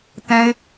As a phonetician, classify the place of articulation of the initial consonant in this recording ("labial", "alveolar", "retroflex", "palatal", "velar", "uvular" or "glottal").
alveolar